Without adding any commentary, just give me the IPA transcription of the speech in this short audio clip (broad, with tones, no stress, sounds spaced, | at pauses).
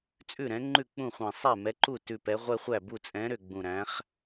t͡sʼ ʉ˥˩ ɾ ɛ̃˨˥ ŋ͡ǃ ʉ˥˩ k͡p ũ˥˩ χʷ ɛ̃˧˩ sˤ ɛ˥˩ m ɛ˨˥ ǃ u˥˩ t ʉ˧˩ p ɛ˨˥ ʁʷ ɛ˦ χʷ æ˥˩ b u˥˩ t͡sʼ ɛ̃˨˥ ɾ ʏ˧˩ ɡ͡b ũ˧˩ ɾ æ̃˨˥ χ